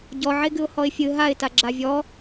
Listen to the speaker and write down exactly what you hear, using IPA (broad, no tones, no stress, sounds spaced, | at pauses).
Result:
ɟ ɔ ʕ e ɡ ɨ ʊ̯ h ɔ ɪ̯ fʲ ɨ ɦ a ɪ̯ t a ɡ͡ǁ a vʲ ɔ